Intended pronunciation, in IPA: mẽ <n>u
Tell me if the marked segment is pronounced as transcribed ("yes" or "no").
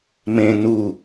yes